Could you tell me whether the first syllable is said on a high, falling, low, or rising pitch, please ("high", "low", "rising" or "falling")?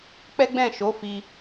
high